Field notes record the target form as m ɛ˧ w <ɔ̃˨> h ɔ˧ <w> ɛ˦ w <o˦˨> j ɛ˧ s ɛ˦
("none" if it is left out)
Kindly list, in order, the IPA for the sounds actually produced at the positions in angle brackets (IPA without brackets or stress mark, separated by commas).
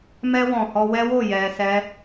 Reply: ɔ̃˨, w, o˦˨